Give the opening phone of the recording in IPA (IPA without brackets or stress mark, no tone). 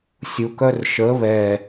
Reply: sʲ